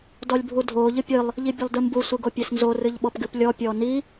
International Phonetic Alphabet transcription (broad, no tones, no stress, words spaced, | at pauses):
dɔlʲbʱudʱoː ʎɨpʲɨlˠ | ʎibʲɨlˠdɨmbu sʷɨɡopʲesnzo rɨʎɓɔpɡɨplʲɔ pʲɔːni